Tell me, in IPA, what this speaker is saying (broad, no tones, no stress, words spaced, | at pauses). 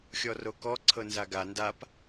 xʲɔrokɔ ǀʰɤnzaɡa ndap